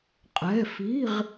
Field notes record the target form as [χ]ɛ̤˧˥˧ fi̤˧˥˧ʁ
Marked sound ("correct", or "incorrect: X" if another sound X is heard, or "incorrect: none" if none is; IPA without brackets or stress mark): incorrect: qʼ